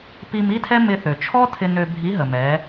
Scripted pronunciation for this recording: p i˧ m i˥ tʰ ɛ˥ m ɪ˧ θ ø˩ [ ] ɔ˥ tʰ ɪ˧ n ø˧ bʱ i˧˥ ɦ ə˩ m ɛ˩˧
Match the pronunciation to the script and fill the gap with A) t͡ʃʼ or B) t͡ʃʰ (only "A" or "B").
B